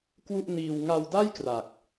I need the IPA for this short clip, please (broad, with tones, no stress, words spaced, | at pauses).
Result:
kwu˥˩ʔniː˧w ŋa˧wda˥˩j kra˨˩k̚